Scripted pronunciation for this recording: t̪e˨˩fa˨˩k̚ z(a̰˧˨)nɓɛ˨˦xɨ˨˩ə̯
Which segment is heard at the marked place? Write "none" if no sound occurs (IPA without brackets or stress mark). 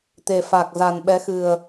a˨˩